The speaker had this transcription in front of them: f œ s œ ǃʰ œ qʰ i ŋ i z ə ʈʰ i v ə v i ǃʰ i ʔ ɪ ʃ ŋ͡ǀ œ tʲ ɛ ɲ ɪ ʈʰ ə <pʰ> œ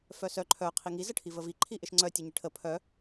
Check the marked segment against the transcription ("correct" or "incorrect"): correct